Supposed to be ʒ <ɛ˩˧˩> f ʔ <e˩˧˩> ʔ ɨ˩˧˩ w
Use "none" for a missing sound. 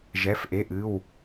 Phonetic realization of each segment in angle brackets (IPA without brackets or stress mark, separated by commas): ɛ˩˧˩, e˩˧˩